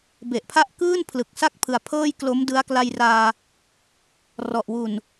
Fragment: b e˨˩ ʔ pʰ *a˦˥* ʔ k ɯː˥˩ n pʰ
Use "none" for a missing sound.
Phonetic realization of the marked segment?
a˦˥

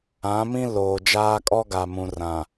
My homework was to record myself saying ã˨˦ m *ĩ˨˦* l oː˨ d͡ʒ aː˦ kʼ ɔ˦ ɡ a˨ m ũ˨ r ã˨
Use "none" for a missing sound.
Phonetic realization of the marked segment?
ĩ˦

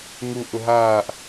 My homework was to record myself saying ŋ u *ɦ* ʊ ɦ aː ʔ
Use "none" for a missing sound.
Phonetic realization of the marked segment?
ʔ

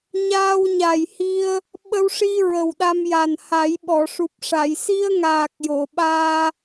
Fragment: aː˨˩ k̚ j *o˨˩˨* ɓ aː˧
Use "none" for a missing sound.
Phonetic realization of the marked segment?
o˨˩˨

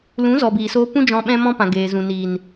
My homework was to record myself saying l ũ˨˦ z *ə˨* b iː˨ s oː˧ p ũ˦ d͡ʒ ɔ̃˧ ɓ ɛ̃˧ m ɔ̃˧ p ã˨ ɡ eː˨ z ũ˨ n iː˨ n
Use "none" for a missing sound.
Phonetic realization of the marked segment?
ɔ˨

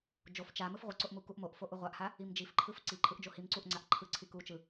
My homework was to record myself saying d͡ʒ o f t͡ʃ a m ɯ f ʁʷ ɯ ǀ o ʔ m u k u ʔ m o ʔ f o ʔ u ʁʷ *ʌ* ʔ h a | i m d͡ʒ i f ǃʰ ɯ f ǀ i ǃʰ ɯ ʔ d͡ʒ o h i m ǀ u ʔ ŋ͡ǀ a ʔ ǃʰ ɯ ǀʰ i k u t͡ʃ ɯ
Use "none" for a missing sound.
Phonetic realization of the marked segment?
a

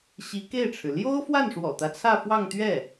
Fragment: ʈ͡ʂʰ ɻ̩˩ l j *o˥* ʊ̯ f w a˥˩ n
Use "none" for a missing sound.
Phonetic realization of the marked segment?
o˥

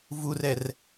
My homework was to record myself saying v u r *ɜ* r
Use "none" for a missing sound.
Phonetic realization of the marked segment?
ɛ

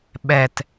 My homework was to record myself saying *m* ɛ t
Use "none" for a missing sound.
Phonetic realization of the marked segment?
ɓ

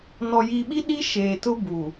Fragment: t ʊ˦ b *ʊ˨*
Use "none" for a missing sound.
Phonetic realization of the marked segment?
u˨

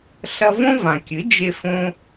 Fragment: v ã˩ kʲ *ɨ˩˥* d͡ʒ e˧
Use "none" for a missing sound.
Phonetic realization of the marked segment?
ɨ˩˥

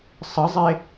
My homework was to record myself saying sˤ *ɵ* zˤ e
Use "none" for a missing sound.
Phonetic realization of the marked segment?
ə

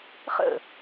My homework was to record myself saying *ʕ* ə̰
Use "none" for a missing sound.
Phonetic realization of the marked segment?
χ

